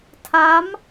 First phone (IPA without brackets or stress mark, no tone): tʰ